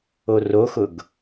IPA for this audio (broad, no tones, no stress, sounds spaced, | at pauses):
o r o x ʊ ɡ